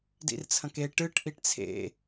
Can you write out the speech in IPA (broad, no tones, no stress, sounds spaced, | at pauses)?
d ḭ r t͡sʰ ɐ̃ k e ʈ ɨ ʈ ʔ i ʈ t͡sʰ ḛ